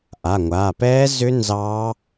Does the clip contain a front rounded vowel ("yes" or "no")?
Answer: yes